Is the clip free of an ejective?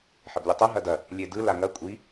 no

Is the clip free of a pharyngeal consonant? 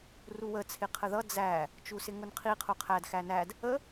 yes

